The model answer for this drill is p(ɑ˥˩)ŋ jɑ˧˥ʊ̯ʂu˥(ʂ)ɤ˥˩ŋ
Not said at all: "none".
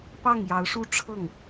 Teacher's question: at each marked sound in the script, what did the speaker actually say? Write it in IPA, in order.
ɑ˥˩, ʈ͡ʂʰ

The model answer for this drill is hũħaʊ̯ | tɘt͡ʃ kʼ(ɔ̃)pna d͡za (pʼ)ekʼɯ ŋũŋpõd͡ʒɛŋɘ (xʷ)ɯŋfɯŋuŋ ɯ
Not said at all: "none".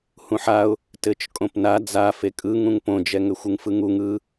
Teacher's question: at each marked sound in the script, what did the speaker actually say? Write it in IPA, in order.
õ, f, xʷ

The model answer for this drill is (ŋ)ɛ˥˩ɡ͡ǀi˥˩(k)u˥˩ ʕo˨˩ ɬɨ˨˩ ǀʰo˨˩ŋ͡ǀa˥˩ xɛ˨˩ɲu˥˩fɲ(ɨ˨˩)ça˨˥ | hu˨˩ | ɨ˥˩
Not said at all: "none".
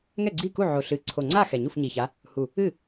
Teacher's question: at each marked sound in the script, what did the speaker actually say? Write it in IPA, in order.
ŋ, k, i˨˩

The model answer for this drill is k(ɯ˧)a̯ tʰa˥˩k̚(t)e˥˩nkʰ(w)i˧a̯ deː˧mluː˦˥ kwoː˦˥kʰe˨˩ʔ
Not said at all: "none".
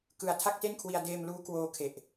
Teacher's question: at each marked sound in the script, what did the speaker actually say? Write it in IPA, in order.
ɯ˧, t, w

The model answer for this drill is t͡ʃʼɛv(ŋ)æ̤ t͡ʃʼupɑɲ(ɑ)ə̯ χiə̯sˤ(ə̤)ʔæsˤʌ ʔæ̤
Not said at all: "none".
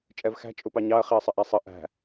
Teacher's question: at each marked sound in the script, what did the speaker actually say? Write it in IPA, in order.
x, ɑ, ə

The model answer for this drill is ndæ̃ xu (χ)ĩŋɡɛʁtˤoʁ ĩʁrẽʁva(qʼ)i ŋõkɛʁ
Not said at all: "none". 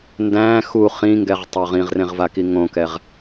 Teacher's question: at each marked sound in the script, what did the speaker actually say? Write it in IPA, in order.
χ, k

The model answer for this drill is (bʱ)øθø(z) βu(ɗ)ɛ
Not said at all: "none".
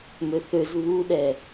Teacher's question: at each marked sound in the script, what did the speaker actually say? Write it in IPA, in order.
m, z, ɗ

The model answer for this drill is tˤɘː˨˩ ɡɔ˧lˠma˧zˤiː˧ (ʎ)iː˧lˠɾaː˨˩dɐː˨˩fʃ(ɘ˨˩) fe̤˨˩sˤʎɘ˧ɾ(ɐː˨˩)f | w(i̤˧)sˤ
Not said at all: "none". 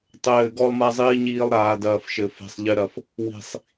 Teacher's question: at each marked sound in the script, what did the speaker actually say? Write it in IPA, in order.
ɲ, ɘ˨˩, ɐ˨˩, i̤˨˩

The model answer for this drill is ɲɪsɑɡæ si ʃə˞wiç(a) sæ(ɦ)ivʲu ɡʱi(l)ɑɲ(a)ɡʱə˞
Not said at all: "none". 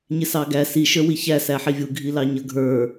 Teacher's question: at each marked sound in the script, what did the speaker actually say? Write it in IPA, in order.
æ, ħ, l, ʌ

